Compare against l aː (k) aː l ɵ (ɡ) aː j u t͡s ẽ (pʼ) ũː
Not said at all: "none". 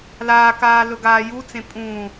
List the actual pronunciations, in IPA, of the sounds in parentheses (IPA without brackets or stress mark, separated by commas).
k, ɡ, pʼ